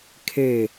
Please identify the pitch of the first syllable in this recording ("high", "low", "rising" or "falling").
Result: falling